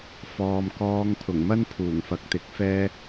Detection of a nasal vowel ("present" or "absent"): absent